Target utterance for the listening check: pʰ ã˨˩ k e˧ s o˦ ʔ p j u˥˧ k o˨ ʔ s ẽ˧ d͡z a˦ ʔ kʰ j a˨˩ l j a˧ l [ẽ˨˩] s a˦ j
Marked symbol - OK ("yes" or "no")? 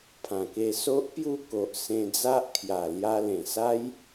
yes